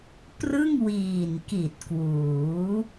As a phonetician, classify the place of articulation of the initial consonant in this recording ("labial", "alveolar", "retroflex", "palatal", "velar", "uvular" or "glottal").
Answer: labial